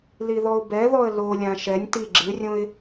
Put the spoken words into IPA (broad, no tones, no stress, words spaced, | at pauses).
liðɔʊ̯bɛðɔə̯ lolʲã ʃɛnʲ ti ɡ͡ǁɨrʲõɪ̯